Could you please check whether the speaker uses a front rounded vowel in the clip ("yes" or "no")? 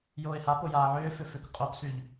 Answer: yes